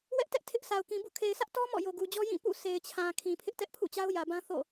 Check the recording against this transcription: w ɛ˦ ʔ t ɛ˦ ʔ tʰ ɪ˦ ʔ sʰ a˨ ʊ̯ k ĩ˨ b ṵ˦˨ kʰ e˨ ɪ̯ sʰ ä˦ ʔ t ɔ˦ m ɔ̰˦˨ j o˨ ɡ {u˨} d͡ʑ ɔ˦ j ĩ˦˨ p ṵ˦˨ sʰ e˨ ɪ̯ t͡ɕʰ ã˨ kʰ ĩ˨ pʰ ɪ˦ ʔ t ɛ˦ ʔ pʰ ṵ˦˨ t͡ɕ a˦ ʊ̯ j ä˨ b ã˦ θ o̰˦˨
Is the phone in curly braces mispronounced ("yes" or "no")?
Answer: no